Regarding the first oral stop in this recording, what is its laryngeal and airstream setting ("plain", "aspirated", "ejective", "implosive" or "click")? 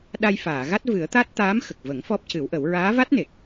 implosive